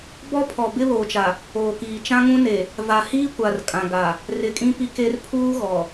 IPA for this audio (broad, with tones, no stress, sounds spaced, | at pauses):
b ɔ˦ pʰ ɔ˨ b ɪ˦ β oː˨ t͡ʃ a˨ | oː˨ k iː˨ t͡ʃ ã˦ ŋ ũ˦ n e˨ | v a˨ h iː˦ kʷ a˨ r kʼ ã˨ ɡ a˨ | r ɪ˨ kʼ ĩ˦ p i˦ k e˦ r pʰ uː˦ ɣ ɔ˨